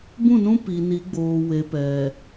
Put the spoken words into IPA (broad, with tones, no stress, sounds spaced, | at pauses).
b ũ˦˨ n ũ˦ p i˨ n i˨˦ ɡ͡b oː˨ w e˨ p ɛ˨